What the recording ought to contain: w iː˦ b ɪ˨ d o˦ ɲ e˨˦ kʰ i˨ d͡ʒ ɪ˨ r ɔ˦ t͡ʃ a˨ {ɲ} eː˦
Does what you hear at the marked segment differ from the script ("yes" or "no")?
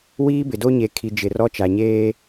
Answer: no